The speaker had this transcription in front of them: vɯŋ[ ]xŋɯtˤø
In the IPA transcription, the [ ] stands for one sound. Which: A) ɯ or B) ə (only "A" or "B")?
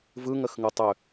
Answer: B